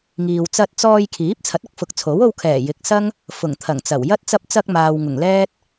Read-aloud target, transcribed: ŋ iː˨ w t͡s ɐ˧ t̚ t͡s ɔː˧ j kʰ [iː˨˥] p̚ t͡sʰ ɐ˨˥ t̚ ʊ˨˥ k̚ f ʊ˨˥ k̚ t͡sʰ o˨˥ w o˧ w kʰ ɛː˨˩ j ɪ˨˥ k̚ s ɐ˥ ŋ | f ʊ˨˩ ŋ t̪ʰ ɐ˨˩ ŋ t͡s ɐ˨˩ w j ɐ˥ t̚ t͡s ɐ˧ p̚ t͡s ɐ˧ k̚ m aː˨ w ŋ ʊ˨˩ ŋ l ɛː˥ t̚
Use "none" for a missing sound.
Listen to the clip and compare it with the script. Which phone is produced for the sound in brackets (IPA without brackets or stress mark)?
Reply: iː˨˥